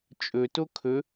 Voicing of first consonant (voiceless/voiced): voiceless